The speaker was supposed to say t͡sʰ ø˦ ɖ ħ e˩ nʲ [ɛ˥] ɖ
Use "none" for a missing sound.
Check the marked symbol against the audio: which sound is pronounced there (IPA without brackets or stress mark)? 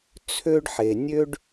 ø˥